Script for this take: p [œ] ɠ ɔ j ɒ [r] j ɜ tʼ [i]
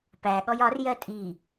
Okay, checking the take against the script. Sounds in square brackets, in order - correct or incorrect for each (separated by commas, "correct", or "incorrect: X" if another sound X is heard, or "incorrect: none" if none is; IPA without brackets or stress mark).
incorrect: æ, correct, correct